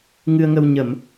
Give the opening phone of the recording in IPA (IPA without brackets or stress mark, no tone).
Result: ŋ